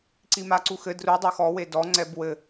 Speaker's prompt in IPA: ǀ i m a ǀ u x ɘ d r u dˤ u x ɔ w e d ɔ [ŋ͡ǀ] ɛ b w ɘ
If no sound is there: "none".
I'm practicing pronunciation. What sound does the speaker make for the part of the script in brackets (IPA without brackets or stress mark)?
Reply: ŋ͡ǀ